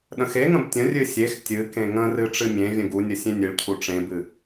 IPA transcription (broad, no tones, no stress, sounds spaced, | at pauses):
ɗ ə̃ x e ŋ ə̃ b tʲ ə̃ rʲ ɨ sʲ e x tʲ ɨ k ẽ ŋ ə̃ r ɨ ʈ͡ʂ ɨ mʲ ẽ vʲ ə̃ ɡ u nʲ ə sʲ ẽ nʲ ɨ ɭ cʰ u ʈ͡ʂ ẽ b ɨ